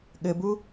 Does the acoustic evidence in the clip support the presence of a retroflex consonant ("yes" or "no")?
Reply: no